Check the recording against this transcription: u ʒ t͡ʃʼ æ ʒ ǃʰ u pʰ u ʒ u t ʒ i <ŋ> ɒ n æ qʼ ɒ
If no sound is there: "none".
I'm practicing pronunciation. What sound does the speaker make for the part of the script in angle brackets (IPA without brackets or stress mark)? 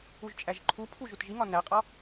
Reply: ŋ